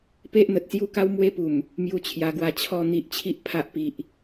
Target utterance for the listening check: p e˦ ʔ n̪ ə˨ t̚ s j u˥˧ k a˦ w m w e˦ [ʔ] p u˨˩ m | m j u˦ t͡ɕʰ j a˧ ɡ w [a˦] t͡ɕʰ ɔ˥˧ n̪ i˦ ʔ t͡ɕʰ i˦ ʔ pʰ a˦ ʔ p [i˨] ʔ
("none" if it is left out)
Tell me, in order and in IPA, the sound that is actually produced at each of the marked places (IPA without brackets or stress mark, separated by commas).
none, a˧, i˨